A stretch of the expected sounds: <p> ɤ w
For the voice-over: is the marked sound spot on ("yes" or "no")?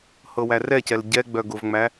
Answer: no